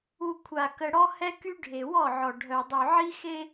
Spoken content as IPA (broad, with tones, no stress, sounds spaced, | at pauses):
u˨ kʷʰ a˨ k ə˨ ɽ ɔ˦ h ɛ˦ k y˦ ɖʱ e˨ w ɔ˦˨ ʕ ɔ˨ ɖʱ œ˨ dˤ y˨ ʕ i˦ x e˦